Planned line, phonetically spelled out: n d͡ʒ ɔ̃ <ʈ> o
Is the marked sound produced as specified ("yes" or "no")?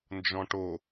yes